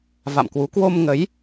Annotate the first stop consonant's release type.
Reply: plain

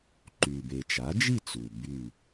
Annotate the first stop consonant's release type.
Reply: click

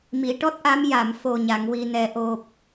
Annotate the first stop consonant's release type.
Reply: plain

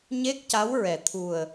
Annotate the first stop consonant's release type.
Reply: plain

